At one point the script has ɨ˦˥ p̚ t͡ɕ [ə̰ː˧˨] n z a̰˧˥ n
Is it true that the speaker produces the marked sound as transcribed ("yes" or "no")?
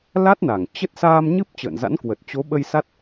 yes